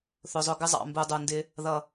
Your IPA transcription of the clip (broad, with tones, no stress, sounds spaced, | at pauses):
θ ʊ˨ zˤ ʊ˧ ɡ ɪ˧ zˤ ɑ̰˨ m b u˨ dˤ u˨ n d ɪ˧ | ð ʌ˨